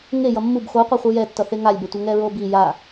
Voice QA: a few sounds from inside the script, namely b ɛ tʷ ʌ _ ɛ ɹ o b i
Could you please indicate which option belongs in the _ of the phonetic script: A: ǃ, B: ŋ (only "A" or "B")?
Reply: B